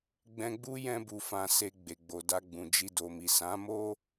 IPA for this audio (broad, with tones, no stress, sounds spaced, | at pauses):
ɡ͡b ɛ̃˧ ɡ͡b u˦ j ɛ̃˦ b u˧ f ã˧ s e˧ ɡ͡b e˨ ɡ͡b o˨ d a˧ ɡ͡b ũ˨ d͡ʒ i˧ d o˨ m i˨ s ã˨˦ m o˦